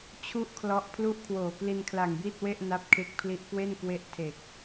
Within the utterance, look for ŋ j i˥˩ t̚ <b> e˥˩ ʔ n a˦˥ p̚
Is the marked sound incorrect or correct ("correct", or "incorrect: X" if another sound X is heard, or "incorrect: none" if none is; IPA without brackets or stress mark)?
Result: incorrect: w